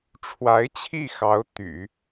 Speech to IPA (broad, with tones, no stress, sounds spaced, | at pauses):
ʈ͡ʂʰ w a˧˥ ɪ̯ t͡ɕʰ i˥˩ x ɑ˧˥ ʊ̯ t̪ y̰˨˩˦